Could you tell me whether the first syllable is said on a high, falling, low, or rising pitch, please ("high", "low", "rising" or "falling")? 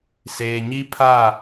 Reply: low